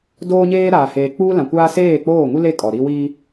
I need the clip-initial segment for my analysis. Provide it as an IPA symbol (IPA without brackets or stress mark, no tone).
d